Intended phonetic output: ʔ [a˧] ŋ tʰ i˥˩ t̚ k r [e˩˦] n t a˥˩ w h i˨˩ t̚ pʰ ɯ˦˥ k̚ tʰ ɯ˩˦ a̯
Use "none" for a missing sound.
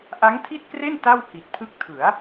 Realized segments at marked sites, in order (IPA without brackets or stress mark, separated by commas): a˦˥, e˥˩